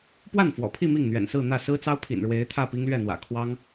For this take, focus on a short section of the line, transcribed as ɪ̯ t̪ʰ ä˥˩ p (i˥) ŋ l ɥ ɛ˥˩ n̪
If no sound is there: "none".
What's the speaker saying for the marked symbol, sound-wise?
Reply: i˥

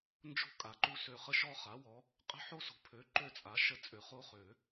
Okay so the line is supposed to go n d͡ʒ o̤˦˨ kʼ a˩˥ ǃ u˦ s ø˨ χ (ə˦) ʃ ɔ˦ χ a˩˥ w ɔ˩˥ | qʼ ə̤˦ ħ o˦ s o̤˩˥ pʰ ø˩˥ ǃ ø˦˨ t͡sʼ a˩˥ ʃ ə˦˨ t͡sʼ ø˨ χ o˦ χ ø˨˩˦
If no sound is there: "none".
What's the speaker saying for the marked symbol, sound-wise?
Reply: ə˦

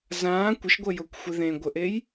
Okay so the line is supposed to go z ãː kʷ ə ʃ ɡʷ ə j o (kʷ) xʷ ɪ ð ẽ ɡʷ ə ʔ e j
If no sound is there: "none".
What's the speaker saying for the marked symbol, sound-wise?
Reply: kʷ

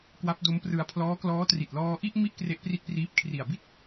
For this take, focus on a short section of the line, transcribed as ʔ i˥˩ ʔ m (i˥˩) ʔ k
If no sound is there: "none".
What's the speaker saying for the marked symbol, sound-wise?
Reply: i˥˩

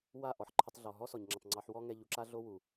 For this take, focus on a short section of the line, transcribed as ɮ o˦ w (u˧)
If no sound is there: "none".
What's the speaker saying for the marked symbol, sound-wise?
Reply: u˨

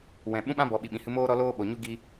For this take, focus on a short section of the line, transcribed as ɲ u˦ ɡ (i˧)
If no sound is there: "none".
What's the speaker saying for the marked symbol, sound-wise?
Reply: i˧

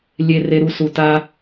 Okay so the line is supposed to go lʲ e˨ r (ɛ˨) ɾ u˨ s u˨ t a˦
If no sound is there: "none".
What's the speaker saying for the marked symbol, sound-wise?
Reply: e˨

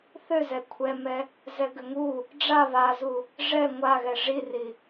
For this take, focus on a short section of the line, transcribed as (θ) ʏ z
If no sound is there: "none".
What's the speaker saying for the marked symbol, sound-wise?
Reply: θ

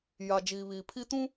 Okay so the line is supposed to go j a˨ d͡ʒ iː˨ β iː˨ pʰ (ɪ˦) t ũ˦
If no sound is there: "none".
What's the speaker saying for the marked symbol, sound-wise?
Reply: i˦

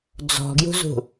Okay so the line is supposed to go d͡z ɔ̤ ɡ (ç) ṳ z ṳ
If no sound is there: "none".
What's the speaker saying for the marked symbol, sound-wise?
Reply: j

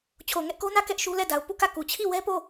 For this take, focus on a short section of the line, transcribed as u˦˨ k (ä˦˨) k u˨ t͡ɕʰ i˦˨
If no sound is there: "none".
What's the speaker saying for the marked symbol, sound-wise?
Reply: ä˦˨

